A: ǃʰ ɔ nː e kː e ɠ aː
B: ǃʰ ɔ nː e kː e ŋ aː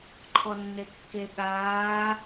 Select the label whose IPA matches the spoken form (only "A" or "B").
A